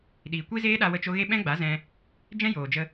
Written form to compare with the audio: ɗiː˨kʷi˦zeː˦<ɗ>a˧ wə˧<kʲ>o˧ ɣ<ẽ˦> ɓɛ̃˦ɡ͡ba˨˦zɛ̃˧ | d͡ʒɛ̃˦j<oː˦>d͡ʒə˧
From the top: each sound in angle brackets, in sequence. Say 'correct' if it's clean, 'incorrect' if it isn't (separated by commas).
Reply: correct, incorrect, incorrect, incorrect